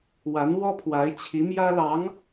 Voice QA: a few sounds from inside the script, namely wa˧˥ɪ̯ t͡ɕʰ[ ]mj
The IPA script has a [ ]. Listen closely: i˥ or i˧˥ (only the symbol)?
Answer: i˧˥